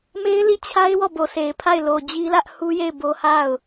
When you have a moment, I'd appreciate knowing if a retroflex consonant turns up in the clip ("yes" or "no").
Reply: no